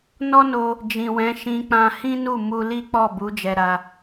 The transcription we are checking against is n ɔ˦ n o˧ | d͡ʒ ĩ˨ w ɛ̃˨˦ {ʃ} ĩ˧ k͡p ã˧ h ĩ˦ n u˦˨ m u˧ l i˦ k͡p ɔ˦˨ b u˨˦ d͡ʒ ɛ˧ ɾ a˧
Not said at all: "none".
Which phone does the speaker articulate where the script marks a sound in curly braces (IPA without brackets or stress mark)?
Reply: ʃ